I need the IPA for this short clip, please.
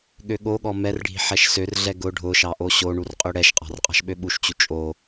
ɠ ø ɠ o ɠ ɔ m ɛ r ɖʱ i̤ ħ ɛ ʃ s ø r ɮ ɛ ɡ ʊ ɖʱ ʊ ʃ ɑ ʔ o ɕ o ɳ u r qʼ ø ɽ ɛ ʃ qʼ ɑ̤ r qʼ ɑ̤ ʃ ɓ ø ɓ u ʃ t͡ɕ u t͡ʃʼ o

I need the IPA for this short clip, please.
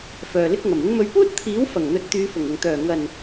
f œː˨ l ɪ˧ k̚ ŋ ɐ˨˩ m ɪ˨˧ ŋ m ɵ˨˧ ɥ p uː˥ t̚ t̪ʰ iː˨˥ w f ɐ˨˩ ŋ n̪ ɵ˨ t̚ t̪ yː˨˧ f ʊ˨˩ ŋ ʊ˨˩ ŋ t̪ œː˨˩ ŋ ɐ˨˩ n

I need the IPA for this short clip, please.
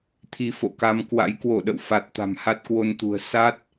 t̪ʰ i˧ f o̰˧˨ k a˧ m k w a̰˧˥ j k w o˧˩ ɗ ə̰˧˨ w f a˨˩ t̚ t̪ a̤˨˩ m h a˦˥ t̚ k w o˧ n t̪ ṳ˨˩ ə̯ s a˦˥ t̚

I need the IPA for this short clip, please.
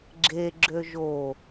ɡ͡ǁ e ɡ͡ǁ ø ʒ o

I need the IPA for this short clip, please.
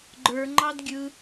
ɡ͡ǃ ə˞ ŋ͡ǃ ɑ d ɡʲ ɯ

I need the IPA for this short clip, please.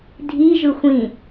dʱ i ʒ ɯ xʷ ĩ

